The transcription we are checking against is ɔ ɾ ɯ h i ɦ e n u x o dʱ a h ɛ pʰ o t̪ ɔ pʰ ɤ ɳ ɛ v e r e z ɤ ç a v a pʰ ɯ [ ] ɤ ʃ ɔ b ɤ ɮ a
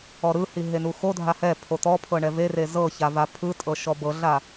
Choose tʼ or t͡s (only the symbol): tʼ